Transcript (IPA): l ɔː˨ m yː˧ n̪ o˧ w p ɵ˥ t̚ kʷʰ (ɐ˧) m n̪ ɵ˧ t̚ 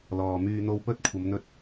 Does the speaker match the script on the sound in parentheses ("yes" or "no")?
no